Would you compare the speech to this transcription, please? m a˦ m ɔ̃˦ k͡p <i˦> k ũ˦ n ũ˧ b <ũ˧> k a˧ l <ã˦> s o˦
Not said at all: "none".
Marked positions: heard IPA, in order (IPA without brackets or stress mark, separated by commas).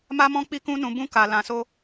i˦, ũ˦, ã˧